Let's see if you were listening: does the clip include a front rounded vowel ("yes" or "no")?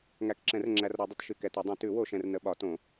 no